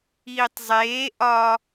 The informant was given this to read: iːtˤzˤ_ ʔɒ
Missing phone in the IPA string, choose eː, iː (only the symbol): eː